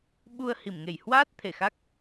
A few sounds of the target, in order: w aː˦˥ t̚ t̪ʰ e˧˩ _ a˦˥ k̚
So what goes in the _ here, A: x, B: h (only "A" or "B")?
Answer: A